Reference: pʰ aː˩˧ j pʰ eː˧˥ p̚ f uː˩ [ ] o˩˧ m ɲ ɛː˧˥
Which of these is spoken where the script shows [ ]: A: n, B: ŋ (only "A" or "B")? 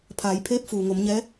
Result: B